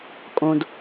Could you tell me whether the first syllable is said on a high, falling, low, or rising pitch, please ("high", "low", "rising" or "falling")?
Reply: low